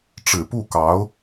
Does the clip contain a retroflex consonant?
yes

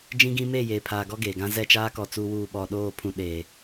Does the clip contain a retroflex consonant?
no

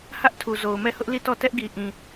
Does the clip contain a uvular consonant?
no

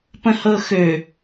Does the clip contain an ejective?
no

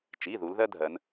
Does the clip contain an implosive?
no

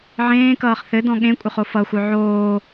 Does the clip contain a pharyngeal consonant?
yes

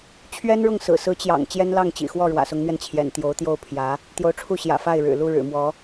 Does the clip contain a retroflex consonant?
yes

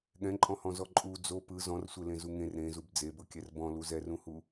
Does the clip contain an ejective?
yes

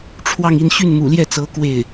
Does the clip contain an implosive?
no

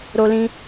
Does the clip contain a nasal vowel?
yes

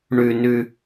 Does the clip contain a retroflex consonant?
yes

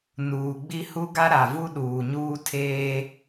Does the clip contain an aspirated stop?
yes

